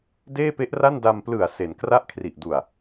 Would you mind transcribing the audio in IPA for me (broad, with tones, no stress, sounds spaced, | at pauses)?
d eː˥˩ p e˦˥ ʔ r a˥˩ n d a˧ m p l ɯ˨˩ a̯ s e˩˦ n k r a˥˩ ʔ kʰ r i˨˩ ʔ d u˨˩ a̯